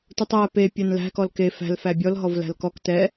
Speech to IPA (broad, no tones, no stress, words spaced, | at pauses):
tutˤæ pe pʲænlæ̤ kɔlke fæ̤l fæbʲɔl ɦɔvlæ̤lkɔk tɛ